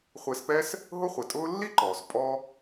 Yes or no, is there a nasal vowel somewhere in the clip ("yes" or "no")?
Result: no